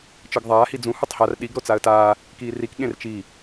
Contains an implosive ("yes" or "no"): yes